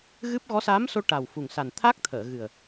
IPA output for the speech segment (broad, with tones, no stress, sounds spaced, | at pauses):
ɣ ɨ˦˥ p̚ ɣ ɔ˧˥ s a˧˥ m s o˧ ʈ a˨˩ w f u˨˩ ŋ s a˨˩ n t̪ʰ a˦˥ k̚ t̪ʰ əː˨˩˨ ɣ ɨ˨˩ ə̯